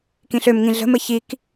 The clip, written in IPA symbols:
k ĩ ɬ ø m ŋ ĩ ɮ ə̤ m ə ç i k

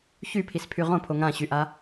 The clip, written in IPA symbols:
ç y pʰ i s pʰ y ʁ õ pʰ o ŋ ã ɕ y ʔ a

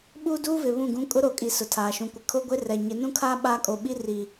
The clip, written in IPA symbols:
ɓ uː˦ d uː˦ v ɪ˨ β ũ˦˨ ɡ ũ˦ kʼ ʊ˦ ɾ o˨ kʼ i˨ s ʊ˨ tʰ aː˨ ʃ ũ˨ kʷ ɪ˨ kʰ o˦ ɡʷ e˦ r ɛ˨ ɲ ɪ˨˦ n ũ˦ kʰ aː˦ ɓ aː˦ kʼ o˨ ɓ i˦ r i˨

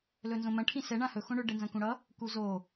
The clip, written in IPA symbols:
l ɵ n z õ m ɐ̃ ʈʰ ĩ s ɛ ɳ ã h ɵ x õ ɳ ɵ ɖ ɛ n z ɐ̃ k ũ ɽ ʌ | k u z o

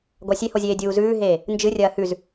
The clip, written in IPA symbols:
ɡʷ a sʲ e h o zʲ eː dʲ uː z ʉː ɦ eː | n d͡ʒ ɨ rʲ ɐː h ʉ z

